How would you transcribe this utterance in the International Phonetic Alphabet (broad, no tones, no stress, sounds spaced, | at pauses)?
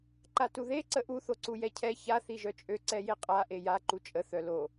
ǃ a t u ð e ǀ ə ʔ u θ o ǀ u j ɛ cʰ ɛ ç a θ i ʒ œ t͡ʃʼ ø ǀ ɛ j e qʼ a ʔ e j a ǃ u t͡ʃʼ ə θ œ l o